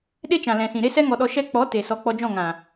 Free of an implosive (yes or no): no